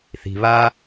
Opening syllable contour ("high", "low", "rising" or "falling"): low